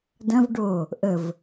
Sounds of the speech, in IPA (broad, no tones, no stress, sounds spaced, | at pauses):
d ɐ̃ v ɖ o | ʔ ə v